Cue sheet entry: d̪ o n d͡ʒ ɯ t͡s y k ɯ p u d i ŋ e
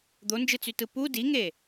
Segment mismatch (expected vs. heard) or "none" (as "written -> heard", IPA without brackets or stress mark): k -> t